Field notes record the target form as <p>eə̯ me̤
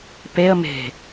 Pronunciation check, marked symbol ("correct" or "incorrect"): correct